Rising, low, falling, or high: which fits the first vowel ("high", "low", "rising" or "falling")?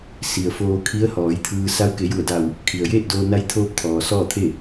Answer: low